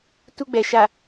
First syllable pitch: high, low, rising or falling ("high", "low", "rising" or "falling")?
high